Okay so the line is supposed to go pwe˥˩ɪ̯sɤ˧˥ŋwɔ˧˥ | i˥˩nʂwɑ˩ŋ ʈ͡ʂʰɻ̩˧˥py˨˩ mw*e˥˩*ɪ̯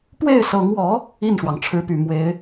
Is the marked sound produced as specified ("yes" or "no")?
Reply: no